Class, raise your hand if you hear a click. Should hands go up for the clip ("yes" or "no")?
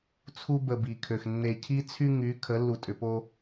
no